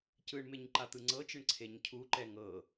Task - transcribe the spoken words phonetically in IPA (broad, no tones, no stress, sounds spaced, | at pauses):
c ɯ ɳ m e ɲ ǃ a t̪ ɯ ŋ͡ǀ ɤ t͡ʃ ɯ ɳ ǀʰ e ɲ cʰ u ǃ ɛ ŋ ɤ